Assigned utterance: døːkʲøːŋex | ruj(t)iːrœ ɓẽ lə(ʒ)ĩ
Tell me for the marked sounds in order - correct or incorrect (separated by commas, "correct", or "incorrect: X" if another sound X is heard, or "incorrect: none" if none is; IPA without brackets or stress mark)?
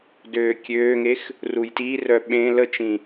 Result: correct, incorrect: t͡ʃ